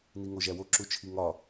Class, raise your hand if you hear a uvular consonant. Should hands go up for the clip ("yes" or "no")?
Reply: no